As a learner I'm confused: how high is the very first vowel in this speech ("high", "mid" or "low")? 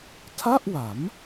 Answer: low